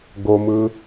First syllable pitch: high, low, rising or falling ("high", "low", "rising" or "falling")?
low